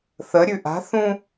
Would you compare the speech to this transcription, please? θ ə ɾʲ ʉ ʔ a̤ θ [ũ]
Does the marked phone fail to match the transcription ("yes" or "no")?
no